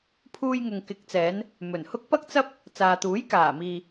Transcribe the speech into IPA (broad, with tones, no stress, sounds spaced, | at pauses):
pʰ uː˧ j ŋ ʊ˨ ŋ k ɪ˨˥ k̚ t͡s ɛː˨˧ n | m ɵ˨˩ n h ʊ˥ k̚ p ɐ˥ k̚ t͡s ɐ˥ p̚ | t͡s aː˨ t̪ uː˨˥ j k aː˨˩ m iː˨